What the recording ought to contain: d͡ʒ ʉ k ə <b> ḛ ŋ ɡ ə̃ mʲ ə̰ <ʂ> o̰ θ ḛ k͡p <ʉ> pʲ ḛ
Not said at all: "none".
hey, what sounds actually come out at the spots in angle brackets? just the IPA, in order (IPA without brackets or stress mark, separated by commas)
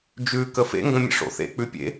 f, ʂ, ʉ